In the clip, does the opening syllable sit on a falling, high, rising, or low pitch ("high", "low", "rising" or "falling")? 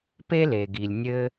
high